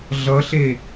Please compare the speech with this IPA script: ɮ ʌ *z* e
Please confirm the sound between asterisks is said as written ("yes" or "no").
no